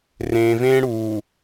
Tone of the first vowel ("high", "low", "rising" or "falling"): low